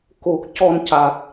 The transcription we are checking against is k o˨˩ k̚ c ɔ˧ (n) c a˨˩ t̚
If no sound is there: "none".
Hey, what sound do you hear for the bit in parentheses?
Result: n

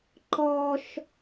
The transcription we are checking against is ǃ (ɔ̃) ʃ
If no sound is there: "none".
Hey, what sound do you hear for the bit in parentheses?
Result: ɔ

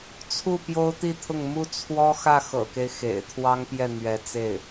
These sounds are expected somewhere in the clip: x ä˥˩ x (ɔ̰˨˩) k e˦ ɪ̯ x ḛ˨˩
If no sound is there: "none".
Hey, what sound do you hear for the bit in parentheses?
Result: ɤ̰˨˩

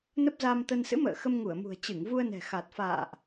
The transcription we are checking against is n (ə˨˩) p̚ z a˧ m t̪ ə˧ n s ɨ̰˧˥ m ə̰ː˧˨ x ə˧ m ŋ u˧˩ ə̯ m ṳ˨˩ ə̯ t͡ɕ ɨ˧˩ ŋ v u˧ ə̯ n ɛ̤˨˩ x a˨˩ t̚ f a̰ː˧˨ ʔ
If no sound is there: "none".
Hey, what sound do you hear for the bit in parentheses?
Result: ə˦˥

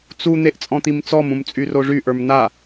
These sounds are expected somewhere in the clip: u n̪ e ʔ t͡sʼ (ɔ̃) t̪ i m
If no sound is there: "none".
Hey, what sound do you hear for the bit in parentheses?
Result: ɔ̃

